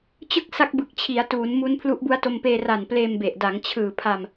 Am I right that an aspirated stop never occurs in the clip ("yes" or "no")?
no